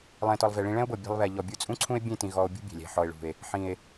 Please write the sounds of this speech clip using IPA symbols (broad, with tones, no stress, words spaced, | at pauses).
lˠɛ̃˨tɔ˨lˠ ve˨ɭĩ˧ ɭɛ̃˦o̯bɤ˨ bʲɛ̤˧lˠβɛ˨ʎɔ˨ bʲu˧t͡sʼũ˦ǀʰũ˦e̯ bʲẽ˦˨tĩ˨ ɣɔ˧o̯bʲṳ˦bʲɛ̤˨ lʲɛ̤˨ħɔ˨e̯ɭṳ˨e̯ | ħĩ˨e̯